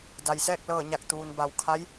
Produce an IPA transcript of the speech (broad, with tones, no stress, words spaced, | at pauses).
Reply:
da˩jsɛː˥˨k̚lɤː˧˩ɲa˧˩k̚ t̪uː˩nba˩wkʰa˧˥j